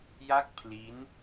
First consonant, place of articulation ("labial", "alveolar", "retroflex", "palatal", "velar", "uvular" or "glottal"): palatal